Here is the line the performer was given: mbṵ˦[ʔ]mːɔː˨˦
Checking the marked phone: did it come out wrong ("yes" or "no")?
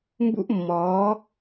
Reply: no